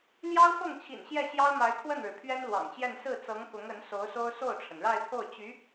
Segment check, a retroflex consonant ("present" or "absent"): present